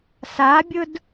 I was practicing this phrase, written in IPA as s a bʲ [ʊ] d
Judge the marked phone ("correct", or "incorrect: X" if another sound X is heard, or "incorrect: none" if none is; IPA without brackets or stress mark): correct